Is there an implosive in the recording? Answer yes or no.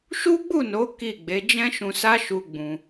no